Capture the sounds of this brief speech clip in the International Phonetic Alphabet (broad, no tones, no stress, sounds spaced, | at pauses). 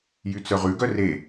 j y t͡s œ ʁ ʉ ɡ œ r e